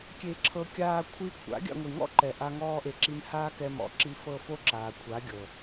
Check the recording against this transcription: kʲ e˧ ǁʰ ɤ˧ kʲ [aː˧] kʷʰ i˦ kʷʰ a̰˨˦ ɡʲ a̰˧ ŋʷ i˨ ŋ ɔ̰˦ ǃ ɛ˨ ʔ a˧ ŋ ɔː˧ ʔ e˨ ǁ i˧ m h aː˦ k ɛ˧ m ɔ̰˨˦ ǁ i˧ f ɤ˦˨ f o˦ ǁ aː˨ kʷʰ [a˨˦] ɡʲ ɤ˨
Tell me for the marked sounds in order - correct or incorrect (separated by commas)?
correct, correct